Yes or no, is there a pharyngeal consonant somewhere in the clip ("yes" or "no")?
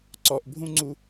no